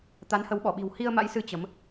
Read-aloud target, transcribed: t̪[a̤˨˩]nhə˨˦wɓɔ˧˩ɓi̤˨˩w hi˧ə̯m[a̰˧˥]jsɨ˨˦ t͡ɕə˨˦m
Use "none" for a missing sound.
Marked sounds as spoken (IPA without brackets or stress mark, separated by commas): a˨˦, a̰˧˥